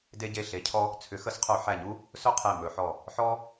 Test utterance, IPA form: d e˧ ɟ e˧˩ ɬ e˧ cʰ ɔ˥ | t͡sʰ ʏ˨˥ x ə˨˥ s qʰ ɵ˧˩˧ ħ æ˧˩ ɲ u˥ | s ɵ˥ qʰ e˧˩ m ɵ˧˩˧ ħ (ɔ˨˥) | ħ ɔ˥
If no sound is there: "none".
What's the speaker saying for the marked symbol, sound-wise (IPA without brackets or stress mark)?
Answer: ɔ˧˩